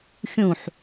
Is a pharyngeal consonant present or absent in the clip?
present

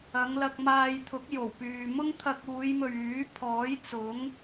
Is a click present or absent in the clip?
absent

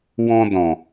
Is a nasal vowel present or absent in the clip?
present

